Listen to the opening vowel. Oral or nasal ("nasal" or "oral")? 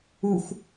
oral